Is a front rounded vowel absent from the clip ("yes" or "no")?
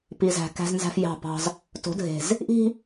yes